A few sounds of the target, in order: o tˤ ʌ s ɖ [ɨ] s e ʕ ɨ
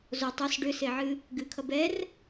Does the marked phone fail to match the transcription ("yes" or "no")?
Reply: yes